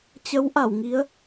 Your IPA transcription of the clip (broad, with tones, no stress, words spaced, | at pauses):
t͡ɕə˨˦w ʔa˧˩wŋi˨˦ə̯